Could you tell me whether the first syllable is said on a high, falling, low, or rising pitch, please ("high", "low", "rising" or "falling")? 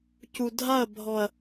low